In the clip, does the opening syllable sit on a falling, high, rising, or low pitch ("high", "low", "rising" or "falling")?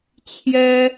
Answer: high